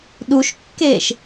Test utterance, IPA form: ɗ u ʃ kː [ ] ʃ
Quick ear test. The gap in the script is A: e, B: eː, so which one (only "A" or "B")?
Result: B